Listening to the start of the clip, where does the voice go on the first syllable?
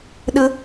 high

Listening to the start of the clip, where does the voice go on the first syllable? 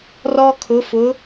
high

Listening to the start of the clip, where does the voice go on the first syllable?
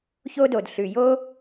high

